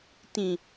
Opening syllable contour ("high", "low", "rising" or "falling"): low